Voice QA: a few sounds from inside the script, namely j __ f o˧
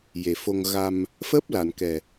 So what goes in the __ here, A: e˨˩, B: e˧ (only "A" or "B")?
A